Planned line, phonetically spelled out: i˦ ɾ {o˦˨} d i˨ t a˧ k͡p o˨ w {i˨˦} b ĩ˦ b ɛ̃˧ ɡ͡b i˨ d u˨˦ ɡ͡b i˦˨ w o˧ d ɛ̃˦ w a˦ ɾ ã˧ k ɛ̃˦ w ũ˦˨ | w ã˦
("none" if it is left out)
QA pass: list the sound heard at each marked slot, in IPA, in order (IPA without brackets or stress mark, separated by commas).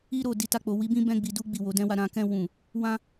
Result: o˦˨, i˨˦